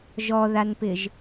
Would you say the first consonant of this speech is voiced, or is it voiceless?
voiced